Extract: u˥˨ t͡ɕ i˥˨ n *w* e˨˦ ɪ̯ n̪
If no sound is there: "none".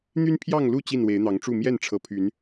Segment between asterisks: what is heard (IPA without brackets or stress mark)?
w